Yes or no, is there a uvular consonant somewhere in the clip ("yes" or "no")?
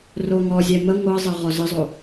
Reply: yes